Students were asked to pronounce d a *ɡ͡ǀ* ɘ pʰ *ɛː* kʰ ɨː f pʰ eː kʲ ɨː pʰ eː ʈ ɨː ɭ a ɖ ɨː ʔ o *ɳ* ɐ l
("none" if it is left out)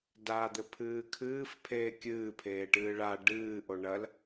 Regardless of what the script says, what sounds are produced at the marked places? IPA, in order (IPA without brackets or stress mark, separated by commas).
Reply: d̪, ɨː, ɳ